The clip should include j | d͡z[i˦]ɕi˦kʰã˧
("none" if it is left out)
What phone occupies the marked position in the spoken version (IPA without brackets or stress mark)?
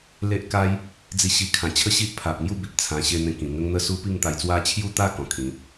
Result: i˥˧